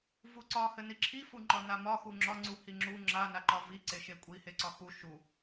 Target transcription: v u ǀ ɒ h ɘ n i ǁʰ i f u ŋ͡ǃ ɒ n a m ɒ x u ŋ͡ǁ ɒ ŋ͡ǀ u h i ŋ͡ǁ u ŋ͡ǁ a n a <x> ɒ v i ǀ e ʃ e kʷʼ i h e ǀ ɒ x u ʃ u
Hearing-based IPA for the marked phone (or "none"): ǃ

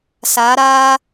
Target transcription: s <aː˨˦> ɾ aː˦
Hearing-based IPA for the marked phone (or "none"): aː˨˦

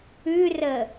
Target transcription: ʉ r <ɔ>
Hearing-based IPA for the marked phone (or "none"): ə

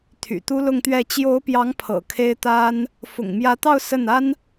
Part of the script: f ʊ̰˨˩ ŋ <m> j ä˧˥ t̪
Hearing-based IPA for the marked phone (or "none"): m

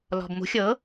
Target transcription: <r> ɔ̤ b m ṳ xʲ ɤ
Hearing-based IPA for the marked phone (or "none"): l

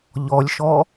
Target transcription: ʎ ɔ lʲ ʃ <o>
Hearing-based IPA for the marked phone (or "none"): ɔ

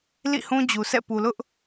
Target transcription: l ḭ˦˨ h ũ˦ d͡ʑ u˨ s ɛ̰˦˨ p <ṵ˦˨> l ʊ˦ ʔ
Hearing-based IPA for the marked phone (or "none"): u˨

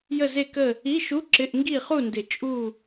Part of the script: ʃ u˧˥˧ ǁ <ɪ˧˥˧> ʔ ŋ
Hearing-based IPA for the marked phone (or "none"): ɪ˧˥˧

